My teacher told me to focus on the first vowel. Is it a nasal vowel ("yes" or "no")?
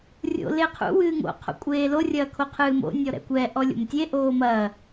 no